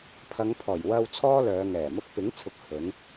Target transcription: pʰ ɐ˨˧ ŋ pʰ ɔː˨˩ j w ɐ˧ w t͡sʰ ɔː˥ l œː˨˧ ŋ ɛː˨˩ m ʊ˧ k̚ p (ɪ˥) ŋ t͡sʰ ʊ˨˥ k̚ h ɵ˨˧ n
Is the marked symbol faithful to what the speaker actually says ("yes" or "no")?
no